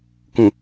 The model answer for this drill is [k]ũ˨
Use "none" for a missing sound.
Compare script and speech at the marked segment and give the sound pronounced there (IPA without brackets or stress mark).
k